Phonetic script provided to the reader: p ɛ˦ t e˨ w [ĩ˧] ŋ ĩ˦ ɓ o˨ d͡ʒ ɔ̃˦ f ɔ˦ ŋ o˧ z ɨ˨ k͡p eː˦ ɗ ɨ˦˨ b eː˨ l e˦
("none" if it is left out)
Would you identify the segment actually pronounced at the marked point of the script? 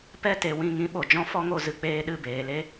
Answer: ĩ˦˨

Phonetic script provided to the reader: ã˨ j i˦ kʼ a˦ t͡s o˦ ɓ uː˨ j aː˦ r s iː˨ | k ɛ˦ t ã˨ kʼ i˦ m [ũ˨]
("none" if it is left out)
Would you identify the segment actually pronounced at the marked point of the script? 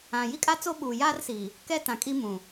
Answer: ũ˨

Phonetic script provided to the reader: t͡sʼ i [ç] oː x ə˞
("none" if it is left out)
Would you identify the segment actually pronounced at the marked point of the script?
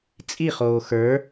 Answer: χ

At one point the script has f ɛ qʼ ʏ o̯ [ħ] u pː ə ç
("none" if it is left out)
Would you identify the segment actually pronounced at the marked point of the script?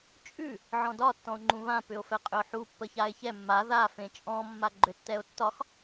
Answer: ħ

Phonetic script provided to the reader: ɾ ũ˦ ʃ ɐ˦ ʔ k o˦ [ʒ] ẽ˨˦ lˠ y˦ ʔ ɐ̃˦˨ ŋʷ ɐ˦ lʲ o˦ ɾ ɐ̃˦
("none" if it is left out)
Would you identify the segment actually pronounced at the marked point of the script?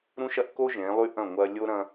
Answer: ʒ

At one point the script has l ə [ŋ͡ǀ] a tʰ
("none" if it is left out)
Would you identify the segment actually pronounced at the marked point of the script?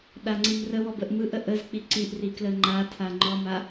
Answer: ŋ͡ǃ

